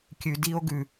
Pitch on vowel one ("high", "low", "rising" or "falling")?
low